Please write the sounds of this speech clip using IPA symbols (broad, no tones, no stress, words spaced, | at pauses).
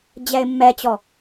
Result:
d͡ʑɛɪ̯mːɛt͡ɕɔ